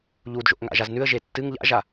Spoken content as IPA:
ʎ u d ʒ o̰ ʔ ŋ a̰ ʒ a z n ʉ ə̯ ʒ e tː ɨ ŋ ʎ a̰ ʒ a

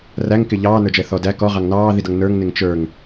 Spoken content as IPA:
r æ ŋ k ɪ ʎ ɑː n ə˞ d͡ʒ ɛ θ ɔ d æ k ɔ ʁ ɑ ŋ n ɑː ð i d ʌ ŋ n ə˞ ŋ n ɪ ŋ t͡ʃ ə˞ ŋ

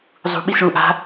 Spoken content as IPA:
zˤ ṳ ɓ i s ɭ ũ ʔ a̤

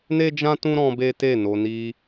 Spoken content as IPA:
n e˦ d͡ʒ ã˦ t ũ˦ ɾ ɔ̃˦ b e˦ t e˦˨ n o˧ n i˧

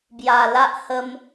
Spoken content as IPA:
b j a˨˩ l a˦ ʔ h ə˦ m

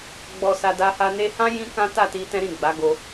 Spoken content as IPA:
ɡ͡b ɔ˨ s a˨ d a˧ h a˧ n e˦ h ã˦ j ĩ˧ k ã˦ t a˦˨ t i˧ t ɛ̃˦ ɾ ĩ˦˨ ɡ͡b a˨˦ ɡ o˧

